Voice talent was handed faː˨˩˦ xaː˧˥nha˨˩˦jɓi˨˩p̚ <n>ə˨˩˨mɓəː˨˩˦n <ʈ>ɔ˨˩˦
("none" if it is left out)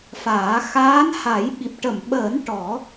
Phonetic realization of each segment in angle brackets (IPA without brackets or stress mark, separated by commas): ʈ, ʈ